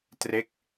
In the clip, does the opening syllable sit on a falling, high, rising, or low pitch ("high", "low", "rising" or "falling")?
falling